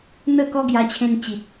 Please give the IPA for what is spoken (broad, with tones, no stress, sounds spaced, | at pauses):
n̪ ə˥˧ k ɔ˦ ɡ j a˧ t͡ɕʰ ẽ˧ n t͡ɕ i˨ t̚